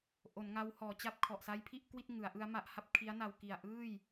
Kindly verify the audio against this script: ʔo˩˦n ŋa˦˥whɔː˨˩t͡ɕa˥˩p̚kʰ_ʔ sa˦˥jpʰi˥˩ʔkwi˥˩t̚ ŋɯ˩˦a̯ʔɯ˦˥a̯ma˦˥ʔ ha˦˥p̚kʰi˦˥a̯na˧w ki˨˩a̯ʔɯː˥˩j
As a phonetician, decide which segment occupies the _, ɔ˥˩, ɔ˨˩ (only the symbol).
ɔ˨˩